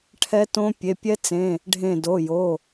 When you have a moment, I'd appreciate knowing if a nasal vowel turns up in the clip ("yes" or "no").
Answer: yes